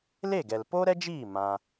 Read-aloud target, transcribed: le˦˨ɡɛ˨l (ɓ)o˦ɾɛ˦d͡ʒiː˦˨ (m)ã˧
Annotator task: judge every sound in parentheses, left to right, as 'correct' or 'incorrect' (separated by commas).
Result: incorrect, correct